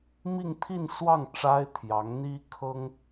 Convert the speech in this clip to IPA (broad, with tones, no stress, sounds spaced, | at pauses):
m i˥˧ ŋ t̪ʰ i˥˧ n s w ɑ˥˩ ŋ ʈ͡ʂ a˥ ɪ̯ t̪ʰ j ɑ˧˥ ŋ n̪ i˥ kʰ ɤ˥ ŋ